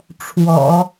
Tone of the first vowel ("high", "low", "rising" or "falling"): low